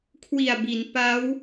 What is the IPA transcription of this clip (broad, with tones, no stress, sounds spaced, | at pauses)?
kʰ w i˨˩ a̯ b i˩˦ n p a˦˥ w